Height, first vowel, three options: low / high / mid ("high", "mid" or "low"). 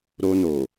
mid